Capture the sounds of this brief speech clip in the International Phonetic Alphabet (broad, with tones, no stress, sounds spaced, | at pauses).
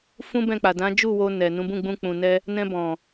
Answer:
f ũ˦ b ɛ̃˦˨ k͡p a˨ d ã˨˦ d͡ʒ u˦˨ w o˧ n ɛ˨ n ũ˨˦ b ũ˦˨ ɡ͡b ũ˧ k͡p ũ˨ n ɛ˧ | n ɛ̃˧ b ɔ̃˨